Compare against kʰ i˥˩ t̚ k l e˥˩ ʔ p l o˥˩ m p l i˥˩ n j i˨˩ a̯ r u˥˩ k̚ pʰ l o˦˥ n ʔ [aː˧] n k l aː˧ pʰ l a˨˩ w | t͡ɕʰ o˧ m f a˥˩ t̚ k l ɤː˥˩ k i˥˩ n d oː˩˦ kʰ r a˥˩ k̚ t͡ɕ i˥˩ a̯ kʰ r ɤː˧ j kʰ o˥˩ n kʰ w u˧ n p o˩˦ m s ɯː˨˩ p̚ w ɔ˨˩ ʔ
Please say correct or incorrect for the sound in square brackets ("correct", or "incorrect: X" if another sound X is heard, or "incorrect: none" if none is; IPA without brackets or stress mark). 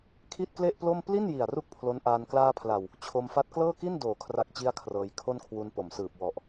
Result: correct